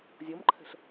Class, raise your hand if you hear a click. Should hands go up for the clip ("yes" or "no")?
yes